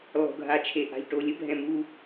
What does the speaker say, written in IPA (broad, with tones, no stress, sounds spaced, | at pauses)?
lˠ o̤˨ ɡʱ a˨ t͡ʃʰ e˨ ʔ a̤˨ ʎ ʈ o˨ lʲ ə˦ bʱ ɛ̃˨ m u˦